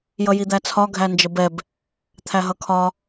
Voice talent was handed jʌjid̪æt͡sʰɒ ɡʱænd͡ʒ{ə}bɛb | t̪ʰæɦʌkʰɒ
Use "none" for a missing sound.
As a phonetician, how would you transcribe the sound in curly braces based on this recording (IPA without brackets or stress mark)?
ə